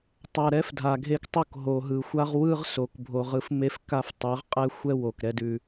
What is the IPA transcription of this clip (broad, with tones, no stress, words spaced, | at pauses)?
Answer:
tˤa˨ ɾɛ˦fdʱa˨ɡʱe˦ktˤo˦˨k ɦo˨ɦɯ˨ xʷa˦ʁwɯ˦ʁso˨k bʱo˦ʁɯ˦f me˦fka˦ftˤɯ˨˦ʁqʼɛ˦ xʷɛ˦wo˨kɾɛ˦dʉ˦